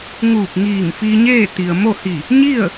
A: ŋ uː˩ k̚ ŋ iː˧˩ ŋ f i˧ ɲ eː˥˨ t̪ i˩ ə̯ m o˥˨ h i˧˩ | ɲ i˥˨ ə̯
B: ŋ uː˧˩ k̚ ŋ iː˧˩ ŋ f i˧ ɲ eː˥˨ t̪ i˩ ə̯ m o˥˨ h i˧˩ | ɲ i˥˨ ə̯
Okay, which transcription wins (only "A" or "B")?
B